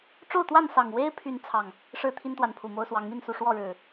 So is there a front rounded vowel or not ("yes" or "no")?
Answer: yes